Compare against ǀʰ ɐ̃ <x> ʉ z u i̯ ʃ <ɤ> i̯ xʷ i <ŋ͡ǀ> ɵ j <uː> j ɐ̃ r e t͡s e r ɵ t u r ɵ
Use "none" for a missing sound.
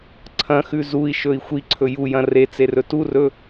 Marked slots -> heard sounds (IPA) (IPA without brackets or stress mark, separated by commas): x, ɵ, ǀʰ, u